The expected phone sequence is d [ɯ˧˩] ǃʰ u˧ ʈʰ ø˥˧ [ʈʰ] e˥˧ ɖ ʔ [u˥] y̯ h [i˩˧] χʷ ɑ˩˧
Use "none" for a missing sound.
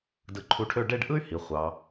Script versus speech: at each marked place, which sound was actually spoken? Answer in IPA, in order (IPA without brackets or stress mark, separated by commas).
ɯ˧˩, ɖ, ɯ˥, i˩˧